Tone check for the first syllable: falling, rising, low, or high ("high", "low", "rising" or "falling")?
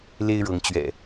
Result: high